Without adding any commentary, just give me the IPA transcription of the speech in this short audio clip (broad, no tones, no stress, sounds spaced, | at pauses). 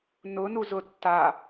n ʊ n u z ʊ tː a